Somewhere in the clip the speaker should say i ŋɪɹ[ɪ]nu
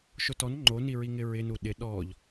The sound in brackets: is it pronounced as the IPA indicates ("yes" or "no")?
yes